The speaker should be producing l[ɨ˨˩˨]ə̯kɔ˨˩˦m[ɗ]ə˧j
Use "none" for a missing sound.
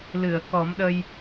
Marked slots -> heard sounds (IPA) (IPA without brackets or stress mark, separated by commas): ɨ˨˩˨, ɗ